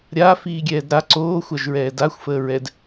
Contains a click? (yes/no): yes